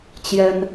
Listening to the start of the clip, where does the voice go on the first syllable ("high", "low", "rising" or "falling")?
high